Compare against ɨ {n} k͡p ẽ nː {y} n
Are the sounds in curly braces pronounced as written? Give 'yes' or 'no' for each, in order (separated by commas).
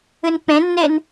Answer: yes, no